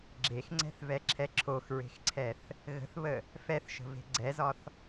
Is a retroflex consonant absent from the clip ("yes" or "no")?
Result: yes